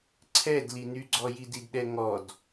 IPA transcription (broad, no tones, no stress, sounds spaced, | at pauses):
ǀʰ ɛ d l i n y ɡ͡ǀ ɔ j i d i d ɗ ɛ ŋ ɔ d